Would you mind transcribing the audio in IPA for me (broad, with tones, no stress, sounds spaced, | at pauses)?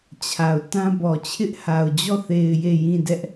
t͡ɕʰ a˨ ʊ̯ t ã˦ b ɔ˨ t͡ɕʰ ɪ˦ ʔ h a˨ ʊ̯ d͡ʑ ɔ˦˨ θ e˨ ɪ̯ j e˦˨ j ĩ˦˨ d ɛ˦ ʔ